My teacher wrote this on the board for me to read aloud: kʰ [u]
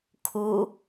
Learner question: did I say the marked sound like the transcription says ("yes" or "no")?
yes